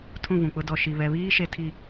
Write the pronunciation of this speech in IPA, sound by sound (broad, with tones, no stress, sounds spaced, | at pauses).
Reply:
tʰ ũ˦˨ v ũ˨ k͡p ʊ˦ d ɔ˨ ʃ i˨ β ɛ˨ β iː˦ ʃ e˨ tʰ i˨